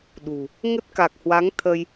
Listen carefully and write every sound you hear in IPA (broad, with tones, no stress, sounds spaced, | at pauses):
ɗ ṳ˨˩ | ŋ ə˦˥ t̚ k a˨˩ k̚ h w a˨˦ ŋ t̪ʰ ə˧ j